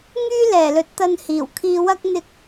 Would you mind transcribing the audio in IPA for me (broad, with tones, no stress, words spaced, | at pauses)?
ŋyː˥lɛː˨˩lɵ˨˥t̚t̪ɐ˧n hiː˨˩wkʰiː˧wɐ˥k̚ n̪ɪ˧k̚